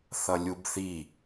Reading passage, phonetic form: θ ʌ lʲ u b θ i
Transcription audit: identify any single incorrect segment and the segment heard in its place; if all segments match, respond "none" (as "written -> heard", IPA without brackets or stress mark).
none